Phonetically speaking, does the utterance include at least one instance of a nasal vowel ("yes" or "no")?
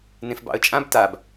yes